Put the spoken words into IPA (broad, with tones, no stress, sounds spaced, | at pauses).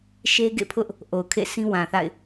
ʃ e˦ ɡ ḛ˦˨ pʰ ʊ˦ ʔ | ʔ o˨ ʊ̯ kʰ ḛ˦˨ s ĩ˦ w ã˨ θ a̰˦˨ ɪ̯